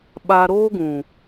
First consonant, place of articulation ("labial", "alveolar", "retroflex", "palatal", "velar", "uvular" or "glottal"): labial